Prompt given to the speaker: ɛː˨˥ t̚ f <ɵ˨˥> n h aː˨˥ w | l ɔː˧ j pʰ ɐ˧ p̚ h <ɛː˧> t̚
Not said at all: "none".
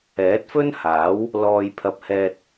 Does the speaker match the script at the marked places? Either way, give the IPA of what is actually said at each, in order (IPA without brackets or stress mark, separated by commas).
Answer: ɵ˥, ɛː˧